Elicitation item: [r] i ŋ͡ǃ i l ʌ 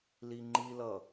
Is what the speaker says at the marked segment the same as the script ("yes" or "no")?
no